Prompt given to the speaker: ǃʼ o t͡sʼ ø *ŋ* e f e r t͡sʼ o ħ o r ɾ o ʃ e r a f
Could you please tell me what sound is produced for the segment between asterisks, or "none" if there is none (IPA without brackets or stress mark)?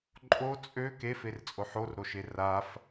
k